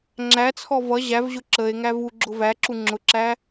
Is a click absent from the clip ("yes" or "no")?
no